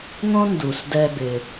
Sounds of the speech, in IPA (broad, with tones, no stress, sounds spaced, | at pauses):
ŋ õ˥ n d u˩ s d ɛ˧ b ɪ˩